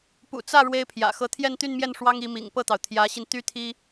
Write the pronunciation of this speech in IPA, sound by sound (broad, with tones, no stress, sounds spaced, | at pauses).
p ṵ˨˩ t͡s ä˥˩ ɻ w e˥ ɪ̯ pʰ j ä̰˨˩ x ɤ˧˥ t̪ʰ j ɛ˥˧ n t̪ y˥˧ n m j ɛ˥˩ n ʂ w ɑ˥ ŋ i˧˥ m ḭ˨˩ ŋ p ɤ˥˩ t̪ ɑ˩ ʊ̯ t̪ʰ j ä˧˥ ɕ i˧ n t̪ y˥ t̪ʰ i˥